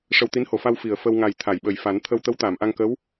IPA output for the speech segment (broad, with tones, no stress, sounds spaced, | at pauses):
ʂ ə˧ w t̪ i˧˥ n h o˨˩˨ f a˧ w f i˨˩˨ ə̯ f ə˧ w ŋ a˨˩ j t̪ʰ a˨˩˨ j ɓ ə˨˩ j f a˨˩˦ n t̪ʰ ə˧ w t̪ ə˧˥ w t̪ aː˨˩˨ m ʔ a˧ ŋ k ə˧˥ w